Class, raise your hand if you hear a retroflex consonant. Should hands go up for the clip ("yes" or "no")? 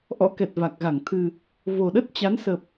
no